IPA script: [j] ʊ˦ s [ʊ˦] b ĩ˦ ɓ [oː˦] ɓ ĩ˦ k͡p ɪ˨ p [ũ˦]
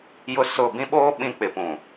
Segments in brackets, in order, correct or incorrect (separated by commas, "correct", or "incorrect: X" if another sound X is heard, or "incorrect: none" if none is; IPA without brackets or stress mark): correct, incorrect: ʊ˦˨, correct, incorrect: ũ˨